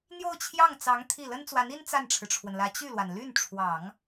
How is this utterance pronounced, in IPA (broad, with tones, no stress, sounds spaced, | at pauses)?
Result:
n̪ j o˥˧ ʊ̯ t͡ɕʰ j ɑ˥˩ ŋ t͡s ɑ˧˥ ŋ t̪ʰ i˥˩ l ə˥ n t͡s w a˧˥ n i˥ n t͡s a˥˩ n ʈ͡ʂʰ ɻ̩˩ ʈ͡ʂʰ w ə˩ n l ä˧˥ t͡ɕ y˥˩ l w a˩ n l y˥˩ n ʈ͡ʂʰ w ɑ˨˩˦ ŋ